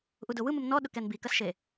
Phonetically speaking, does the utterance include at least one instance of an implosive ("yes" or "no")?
yes